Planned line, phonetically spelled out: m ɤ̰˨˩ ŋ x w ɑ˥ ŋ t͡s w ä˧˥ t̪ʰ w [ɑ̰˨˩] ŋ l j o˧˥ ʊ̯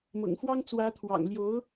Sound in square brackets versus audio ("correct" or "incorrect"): correct